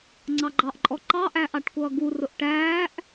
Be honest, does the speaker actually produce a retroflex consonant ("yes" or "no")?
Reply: yes